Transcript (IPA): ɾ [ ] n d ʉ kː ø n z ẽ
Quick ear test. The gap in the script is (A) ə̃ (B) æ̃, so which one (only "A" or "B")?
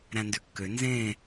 B